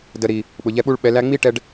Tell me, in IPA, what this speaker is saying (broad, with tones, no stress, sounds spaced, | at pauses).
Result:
d ə˨ ɾ i˨ | ɓ ʊ˨ ʎ ɛ˧ ɓ u˦ ɭ ɓ ɛ˧ l æ˧ ŋ͡m i˦ ʈ ɛ˧ ɖ